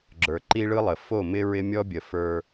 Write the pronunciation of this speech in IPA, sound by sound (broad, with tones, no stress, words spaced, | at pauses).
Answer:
ɡ͡ǁə˞˨ǃi˦ɭɯ˦lˠə˨ fo˦˨mɪ˦ ɹɪ˦mʲɔ˦bʲə˨ fə˞˦